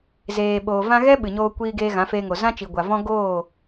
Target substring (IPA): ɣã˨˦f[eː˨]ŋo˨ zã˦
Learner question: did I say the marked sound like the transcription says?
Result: no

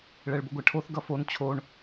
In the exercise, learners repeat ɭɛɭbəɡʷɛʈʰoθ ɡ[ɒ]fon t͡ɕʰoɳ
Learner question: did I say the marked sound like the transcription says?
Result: no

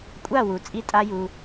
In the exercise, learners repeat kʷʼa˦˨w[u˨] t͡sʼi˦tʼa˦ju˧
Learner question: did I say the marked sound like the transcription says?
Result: yes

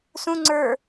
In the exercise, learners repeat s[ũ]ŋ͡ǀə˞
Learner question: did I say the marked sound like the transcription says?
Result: yes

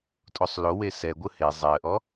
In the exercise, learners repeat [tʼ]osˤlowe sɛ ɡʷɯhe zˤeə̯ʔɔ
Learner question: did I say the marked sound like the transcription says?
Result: yes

